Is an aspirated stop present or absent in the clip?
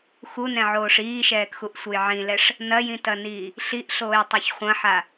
absent